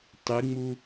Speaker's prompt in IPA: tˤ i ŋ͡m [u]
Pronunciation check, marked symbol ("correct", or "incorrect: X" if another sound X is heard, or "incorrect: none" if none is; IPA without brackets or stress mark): correct